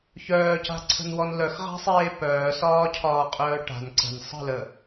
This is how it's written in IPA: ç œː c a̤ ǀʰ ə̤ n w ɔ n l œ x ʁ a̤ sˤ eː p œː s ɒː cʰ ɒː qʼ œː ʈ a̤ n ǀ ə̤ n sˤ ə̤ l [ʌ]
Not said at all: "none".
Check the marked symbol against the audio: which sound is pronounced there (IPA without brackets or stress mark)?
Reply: ə